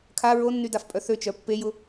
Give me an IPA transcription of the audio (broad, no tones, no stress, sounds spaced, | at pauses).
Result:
kʰ a ɹ o nː y d a f pʼ œ θ ø t͡ʃ œ pː e j ʊ